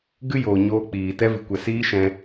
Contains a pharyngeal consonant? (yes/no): no